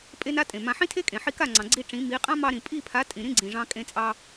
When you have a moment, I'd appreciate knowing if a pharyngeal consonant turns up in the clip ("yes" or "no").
yes